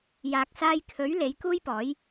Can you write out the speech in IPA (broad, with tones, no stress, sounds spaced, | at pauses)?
j aː˨ k̚ s aː˧ j kʰ ɵ˨˥ ɥ l e˨˥ j k uː˥ j p ɔː˨˥ j